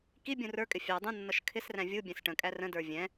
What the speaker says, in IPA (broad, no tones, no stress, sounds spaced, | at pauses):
k i bʲ ũ r ə˞ kʼ ɪ fʲ ɑ dˤ ũ nː ʌ ʃ kʰ ɪ s r æ̃ vʲ u bʲ ɛ̃ s ʈ ə̃ kʼ æ r ə̃ d ə˞ vʲ ɛ̃